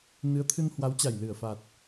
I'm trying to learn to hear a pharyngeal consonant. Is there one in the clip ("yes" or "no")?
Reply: no